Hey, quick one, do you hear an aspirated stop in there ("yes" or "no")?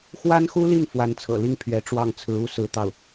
yes